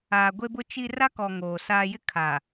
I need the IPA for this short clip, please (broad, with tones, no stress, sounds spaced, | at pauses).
aː˨ ɡʷ e˦ b ʊ˦ t͡ʃ i˦ r a˦ k ɔ˨ ŋ oː˨ s aː˦ j ɪ˦ kʰ a˨